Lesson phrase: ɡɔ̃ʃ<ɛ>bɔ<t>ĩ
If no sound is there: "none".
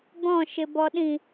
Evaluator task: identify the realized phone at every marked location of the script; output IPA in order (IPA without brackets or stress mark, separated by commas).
ɪ, ɗ